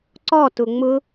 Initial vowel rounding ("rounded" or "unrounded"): rounded